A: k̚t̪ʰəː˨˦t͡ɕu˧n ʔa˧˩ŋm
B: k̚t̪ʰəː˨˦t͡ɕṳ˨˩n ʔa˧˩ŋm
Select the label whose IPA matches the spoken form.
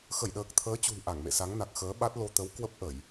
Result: B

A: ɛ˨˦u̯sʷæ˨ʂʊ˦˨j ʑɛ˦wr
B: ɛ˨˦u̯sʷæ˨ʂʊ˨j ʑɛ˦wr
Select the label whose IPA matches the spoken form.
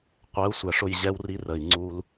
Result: A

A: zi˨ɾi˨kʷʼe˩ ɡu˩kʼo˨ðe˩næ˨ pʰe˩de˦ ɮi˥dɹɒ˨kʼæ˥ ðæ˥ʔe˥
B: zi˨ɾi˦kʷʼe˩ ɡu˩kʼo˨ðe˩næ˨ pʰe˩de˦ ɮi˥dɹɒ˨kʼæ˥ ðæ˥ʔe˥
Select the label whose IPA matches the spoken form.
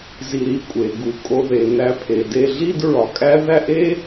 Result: A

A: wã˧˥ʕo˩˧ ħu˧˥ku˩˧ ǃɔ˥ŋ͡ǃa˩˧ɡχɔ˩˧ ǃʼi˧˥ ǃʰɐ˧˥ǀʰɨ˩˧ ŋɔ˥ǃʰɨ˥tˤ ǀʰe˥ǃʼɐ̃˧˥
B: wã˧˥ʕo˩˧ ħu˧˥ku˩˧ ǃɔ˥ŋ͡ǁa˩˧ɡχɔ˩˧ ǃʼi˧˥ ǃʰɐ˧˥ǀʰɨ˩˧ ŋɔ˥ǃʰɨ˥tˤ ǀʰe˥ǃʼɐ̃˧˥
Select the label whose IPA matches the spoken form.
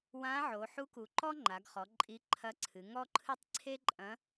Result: A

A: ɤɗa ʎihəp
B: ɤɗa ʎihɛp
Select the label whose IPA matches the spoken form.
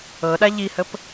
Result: A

